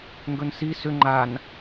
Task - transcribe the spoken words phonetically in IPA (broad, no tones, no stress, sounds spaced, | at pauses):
ŋ ɡ ɵ n s i s ʏ ŋ͡ǃ a n